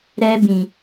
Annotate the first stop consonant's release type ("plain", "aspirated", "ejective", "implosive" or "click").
plain